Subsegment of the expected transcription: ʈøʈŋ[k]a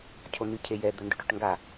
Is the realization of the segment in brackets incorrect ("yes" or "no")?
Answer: yes